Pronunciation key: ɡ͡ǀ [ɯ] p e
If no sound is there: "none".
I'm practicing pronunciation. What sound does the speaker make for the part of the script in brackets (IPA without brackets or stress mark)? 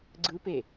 ɯ